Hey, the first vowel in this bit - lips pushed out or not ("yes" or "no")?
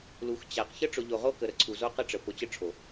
yes